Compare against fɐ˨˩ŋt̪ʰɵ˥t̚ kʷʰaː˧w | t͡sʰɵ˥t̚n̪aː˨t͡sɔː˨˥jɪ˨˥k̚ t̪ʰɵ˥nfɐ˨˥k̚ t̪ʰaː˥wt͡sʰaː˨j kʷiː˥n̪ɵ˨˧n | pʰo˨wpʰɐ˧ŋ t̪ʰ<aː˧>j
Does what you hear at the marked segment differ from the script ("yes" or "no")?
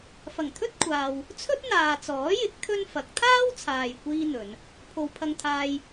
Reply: yes